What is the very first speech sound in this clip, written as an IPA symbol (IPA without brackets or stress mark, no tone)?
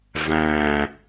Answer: v